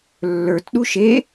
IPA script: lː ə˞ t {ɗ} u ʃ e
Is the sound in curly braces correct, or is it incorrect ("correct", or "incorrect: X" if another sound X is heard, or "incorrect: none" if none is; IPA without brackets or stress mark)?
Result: correct